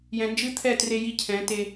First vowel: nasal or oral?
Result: nasal